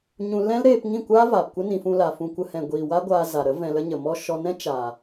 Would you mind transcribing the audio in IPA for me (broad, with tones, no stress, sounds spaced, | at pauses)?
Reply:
ɲ ũ˧ l ɛ̃˦ l ɾ eː˧ p ŋ ĩ˦˨ kʷ aː˦ v aː˨ p kʷ ə˦ n ĩ˧ f ũ˧ l a˨ f ũ˧ kʷ ə˧ h ɛ̃˨ ɡʷ iː˨ w a˦ ɡʷ aː˧ z a˨ ɾ ə˨˦ v ɛ̃˧ l ə˦ ɲ ə˨ m ɔ˦ ʃ ɔ˧ n ɛ̃˦ t͡ʃ aː˨